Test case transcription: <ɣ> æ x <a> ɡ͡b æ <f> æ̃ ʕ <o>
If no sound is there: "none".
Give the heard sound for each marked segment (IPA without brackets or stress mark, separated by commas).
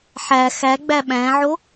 ħ, æ, ɓ, o